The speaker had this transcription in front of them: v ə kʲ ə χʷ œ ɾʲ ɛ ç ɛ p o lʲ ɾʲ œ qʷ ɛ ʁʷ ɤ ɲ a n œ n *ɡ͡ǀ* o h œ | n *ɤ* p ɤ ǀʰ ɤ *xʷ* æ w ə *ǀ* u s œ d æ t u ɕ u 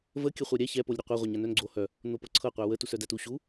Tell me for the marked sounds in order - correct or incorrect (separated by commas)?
correct, incorrect, incorrect, incorrect